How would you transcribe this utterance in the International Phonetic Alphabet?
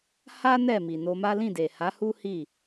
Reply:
h a˦ n ɛ˦˨ m i˨ n o˧ m a˦ l ĩ˦˨ d e˨ h a˨˦ h u˦ h i˦˨

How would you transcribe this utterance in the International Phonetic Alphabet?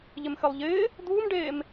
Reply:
ʎ ɪ m x ɘ lˠ ʎ ɪː | d̪ uː m ɖ eː m

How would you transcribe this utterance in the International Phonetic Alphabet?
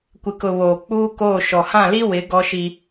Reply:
kʷ ɪ˨ k ʊ˨ β oː˨ k͡p uː˦ k oː˦˨ ʃ ɔ˨ h ã˦˨ l i˦ w ɪ˨˦ ɡ ɔ˦ ʃ i˦

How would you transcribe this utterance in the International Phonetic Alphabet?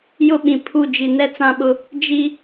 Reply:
j ʊ˦ ɓ ĩ˨ pʰ u˦˨ d͡ʒ i˨ n ɛ˦ t͡s ã˦ ɓ ʊ˦ | d͡ʒ i˦

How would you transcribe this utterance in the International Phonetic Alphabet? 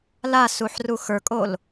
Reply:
l a s u ħ r u x ə˞ kʼ o l

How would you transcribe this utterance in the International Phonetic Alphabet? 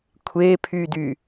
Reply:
kʷʰ e pʰ y d y

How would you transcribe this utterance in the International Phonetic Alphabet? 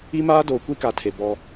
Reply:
i˦ m aː˦ d oː˨ kʷ i˦ k a˨ tʰ e˨ b ɔ˦

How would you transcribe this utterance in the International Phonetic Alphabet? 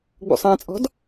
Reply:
ɡ͡b ṵ sˤ æ̃ t͡sʼ ɔ̤ d

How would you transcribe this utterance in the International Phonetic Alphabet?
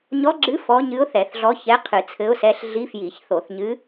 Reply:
ɲ ɔ˧˥ ɡ͡ǁ ɨ˧˥ f ɔ˧˥ ɲ ɨ˧˥ ʊ̯ θ ɛ˧˩˧ θ ɮ ɔ˧˥ ç ɛ˧˥ qʰ ɨ˧˩˧ t͡sʰ ɘ˧˥ ʊ̯ s ɛ˧˥ ɬ ɮ i˧˥ f j i˧˩˧ ç θ o˧˩˧ θ ɲ ɨ˧˥

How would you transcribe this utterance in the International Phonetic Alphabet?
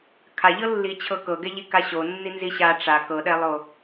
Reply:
kʰ a ʎ ɤ lː i t͡ɕʰ ɤ k ɤ ɡ ɛ ʎ i k a ɕ o nː i n z i ɕ a ʈ͡ʂ a k ɤ ɗ ɛ lˠ o

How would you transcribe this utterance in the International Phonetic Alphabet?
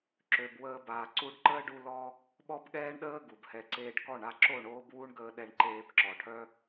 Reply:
ǁ ø˨ b w əː˧ b aː˨ ǀ u˧ ɖ ǃ əː˦ ɖ u˧ l ɔ˦ | ɓ ɔ˦ b ɠ ɛː˦ ɳ ɗ əː˦ ɡ u˨ b h ɛ˧ ǀ eː˦ ɖ k ɔ˦˨ ɳ a˧ ǁ o˦˨ ɳ oː˦ b w u˦ ɳ ɡ əː˧ ɗ ɛ˧ ɳ ǃ eː˧ b ǁ ɔ˨ ʈʰ œ˦

